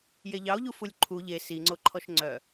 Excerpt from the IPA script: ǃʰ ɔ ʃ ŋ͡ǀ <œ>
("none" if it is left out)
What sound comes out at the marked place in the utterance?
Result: œ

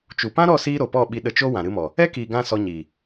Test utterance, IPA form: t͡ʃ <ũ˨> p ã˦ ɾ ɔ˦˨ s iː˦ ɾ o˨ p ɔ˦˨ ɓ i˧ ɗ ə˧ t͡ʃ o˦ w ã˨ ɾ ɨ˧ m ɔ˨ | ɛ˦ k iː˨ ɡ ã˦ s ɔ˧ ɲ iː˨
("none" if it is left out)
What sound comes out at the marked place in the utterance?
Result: u˨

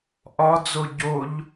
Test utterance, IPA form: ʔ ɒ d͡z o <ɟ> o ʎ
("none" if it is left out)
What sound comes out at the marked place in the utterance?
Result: ɟ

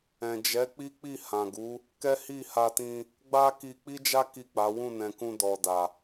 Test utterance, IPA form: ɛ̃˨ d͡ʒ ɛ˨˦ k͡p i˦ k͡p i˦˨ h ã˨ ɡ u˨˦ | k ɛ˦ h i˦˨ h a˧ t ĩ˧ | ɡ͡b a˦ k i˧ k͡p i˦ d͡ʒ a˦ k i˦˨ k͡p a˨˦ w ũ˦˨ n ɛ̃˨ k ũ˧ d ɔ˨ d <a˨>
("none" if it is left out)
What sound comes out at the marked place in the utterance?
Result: a˨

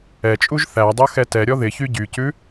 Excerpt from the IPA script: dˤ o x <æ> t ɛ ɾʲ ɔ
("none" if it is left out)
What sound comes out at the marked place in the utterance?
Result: ɛ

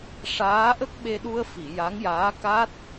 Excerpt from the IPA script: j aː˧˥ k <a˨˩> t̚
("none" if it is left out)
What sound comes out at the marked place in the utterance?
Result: a˦˥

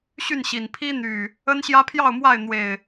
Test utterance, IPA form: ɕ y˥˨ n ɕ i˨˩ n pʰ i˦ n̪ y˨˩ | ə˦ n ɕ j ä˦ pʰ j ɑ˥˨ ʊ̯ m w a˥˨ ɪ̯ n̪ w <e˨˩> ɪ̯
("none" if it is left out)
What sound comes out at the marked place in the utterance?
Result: e˨˩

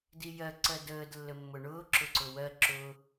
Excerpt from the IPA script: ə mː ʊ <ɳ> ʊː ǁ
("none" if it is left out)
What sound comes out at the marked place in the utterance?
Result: ɳ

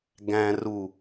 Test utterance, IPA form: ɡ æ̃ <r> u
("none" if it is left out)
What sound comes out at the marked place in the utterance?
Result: r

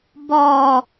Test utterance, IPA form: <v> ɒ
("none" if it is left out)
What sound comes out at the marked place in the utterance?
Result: b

